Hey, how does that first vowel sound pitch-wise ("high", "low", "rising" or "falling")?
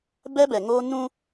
high